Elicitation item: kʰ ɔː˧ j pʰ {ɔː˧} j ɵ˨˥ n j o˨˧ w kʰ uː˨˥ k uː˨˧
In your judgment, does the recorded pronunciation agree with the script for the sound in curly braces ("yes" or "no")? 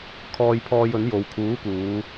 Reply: yes